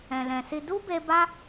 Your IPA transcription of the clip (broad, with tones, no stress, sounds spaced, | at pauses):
ɛ̃˨ l ɛ̃˨ s i˧ d u˦ b e˧ b a˦